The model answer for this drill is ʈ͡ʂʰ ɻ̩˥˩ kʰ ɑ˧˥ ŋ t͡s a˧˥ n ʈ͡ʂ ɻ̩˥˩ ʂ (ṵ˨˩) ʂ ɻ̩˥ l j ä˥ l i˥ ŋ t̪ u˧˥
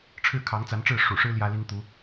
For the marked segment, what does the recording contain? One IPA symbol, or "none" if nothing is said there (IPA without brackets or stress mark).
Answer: ṵ˨˩